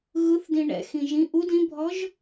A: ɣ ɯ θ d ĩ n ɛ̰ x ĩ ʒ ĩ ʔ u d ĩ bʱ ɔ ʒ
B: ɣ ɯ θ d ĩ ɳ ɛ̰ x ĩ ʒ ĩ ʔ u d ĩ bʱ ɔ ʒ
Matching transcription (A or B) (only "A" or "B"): B